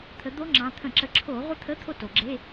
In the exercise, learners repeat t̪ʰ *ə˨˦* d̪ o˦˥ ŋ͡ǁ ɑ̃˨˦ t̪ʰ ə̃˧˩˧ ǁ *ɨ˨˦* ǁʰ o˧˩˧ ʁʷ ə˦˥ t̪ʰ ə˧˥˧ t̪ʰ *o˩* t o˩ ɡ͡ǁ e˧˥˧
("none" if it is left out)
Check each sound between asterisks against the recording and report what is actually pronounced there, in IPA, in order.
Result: ə˨˦, ə˨˦, o˥˧

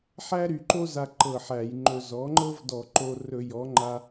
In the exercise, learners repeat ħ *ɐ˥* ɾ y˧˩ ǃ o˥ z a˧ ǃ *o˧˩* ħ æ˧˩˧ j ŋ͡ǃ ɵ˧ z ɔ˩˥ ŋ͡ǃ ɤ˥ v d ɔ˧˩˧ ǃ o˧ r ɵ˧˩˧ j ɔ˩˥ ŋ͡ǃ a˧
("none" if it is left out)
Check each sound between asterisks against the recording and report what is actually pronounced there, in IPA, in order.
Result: æ˥, ɤ˧˩

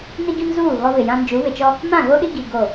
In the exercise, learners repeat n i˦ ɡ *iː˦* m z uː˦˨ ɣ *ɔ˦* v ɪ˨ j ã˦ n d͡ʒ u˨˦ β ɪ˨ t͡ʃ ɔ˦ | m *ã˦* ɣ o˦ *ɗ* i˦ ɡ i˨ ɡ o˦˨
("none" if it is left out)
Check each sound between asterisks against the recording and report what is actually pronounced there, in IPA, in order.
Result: i˦, ɔ˦, ã˦˨, ɗ

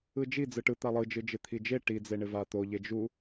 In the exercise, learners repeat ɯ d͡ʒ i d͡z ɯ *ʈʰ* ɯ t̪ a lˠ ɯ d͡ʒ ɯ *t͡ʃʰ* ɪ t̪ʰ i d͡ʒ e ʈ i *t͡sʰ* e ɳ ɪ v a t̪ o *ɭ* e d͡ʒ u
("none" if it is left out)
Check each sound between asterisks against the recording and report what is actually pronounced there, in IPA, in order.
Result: ʈ, d͡ʒ, d͡z, ʎ

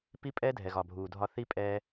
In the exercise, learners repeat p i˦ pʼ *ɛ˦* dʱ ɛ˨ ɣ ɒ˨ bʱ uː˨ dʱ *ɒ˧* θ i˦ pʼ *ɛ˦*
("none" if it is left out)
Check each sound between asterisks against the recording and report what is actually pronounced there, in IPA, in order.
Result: ɛ˦, ɒ˧, ɛː˦

